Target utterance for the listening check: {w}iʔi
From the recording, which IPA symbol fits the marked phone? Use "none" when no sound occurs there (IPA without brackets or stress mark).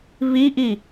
β